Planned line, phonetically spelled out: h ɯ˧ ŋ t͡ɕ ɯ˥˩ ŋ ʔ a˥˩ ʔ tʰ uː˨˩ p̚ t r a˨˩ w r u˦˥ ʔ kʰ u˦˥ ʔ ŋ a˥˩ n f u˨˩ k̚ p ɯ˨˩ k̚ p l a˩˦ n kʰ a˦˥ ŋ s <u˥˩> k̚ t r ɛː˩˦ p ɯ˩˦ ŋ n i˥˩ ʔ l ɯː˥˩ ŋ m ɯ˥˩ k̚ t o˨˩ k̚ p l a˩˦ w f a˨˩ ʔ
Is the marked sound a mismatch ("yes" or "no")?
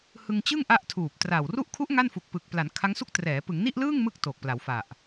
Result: no